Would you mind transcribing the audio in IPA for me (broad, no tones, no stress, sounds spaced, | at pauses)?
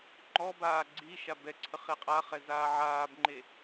ŋ͡ǃ ɔ b aː ɡ͡ǀ i ʃ a b ɛ ǀʰ ə χ e qʼ a χ ɛ z aː ʕ aː b ŋ͡ǃ e